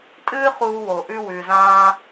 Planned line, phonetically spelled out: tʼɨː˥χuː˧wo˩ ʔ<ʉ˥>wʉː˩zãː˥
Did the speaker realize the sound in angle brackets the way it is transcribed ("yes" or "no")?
yes